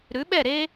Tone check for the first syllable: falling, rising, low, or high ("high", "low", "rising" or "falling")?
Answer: rising